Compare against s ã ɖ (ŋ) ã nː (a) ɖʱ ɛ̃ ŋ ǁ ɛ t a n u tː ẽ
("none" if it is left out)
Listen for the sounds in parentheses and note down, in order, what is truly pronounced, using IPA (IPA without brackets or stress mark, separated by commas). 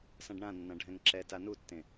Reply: ɳ, ã